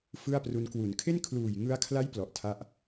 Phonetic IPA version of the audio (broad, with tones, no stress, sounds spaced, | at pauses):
f ɯ˥˩ a̯ p r u˧ n k w u˩˦ n kʰ e˥˩ n kʰ l uː˨˩ j ŋ ɯ˧ a̯ kʰ l a˦˥ j p l ɔ˨˩ ʔ tʰ a˥˩ ʔ